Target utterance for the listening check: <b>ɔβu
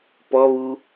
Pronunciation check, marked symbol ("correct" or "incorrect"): incorrect